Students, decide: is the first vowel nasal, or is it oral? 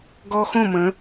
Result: oral